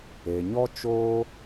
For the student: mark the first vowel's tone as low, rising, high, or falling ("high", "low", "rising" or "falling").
low